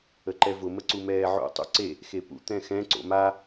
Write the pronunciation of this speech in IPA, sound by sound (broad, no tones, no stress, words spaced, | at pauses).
əǃɛvʊ məǀumɛːʕo̰ tˤṵǀe | xepṵ t̪ɛ̃xɛ̃ ǀo̰ma